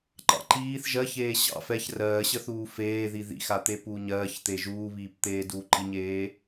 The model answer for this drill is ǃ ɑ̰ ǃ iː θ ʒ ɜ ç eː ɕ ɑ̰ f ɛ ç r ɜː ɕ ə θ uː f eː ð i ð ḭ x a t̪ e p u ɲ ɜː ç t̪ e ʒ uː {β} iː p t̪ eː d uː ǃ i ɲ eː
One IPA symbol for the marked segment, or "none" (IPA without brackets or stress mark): β